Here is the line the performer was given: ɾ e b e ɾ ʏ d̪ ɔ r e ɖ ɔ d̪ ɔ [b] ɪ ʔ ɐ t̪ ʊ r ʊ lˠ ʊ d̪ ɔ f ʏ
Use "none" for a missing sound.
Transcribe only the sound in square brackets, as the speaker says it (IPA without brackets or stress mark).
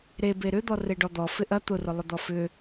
f